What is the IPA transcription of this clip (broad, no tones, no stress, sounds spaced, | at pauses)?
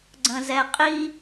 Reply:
ɡ͡ǀ ə̃ z ɛ qʼ i